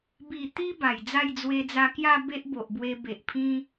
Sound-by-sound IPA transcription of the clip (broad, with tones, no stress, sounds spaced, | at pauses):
b i˨˩ t̪ i˧ b a˨˩ j d͡z a˥˧ j d͡z w e˧ d͡z a˧ k j a˥˧ b e˦ ʔ b o˨ ʔ b w e˧ b e˨ ʔ pʰ ĩ˦